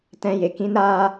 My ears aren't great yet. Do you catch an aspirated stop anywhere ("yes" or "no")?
no